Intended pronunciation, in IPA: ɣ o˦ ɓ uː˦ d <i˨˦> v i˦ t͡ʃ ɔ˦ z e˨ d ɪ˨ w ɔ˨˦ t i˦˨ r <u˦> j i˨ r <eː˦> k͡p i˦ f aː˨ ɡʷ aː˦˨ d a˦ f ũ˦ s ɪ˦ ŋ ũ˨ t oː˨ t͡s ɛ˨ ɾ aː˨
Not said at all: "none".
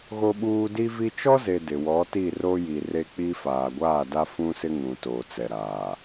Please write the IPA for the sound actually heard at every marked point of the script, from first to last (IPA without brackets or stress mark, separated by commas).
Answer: i˦, o˦, e˦